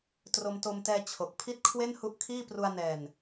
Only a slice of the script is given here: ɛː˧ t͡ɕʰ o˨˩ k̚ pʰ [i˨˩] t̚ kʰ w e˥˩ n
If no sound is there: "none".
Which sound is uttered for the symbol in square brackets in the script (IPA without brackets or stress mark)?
i˥˩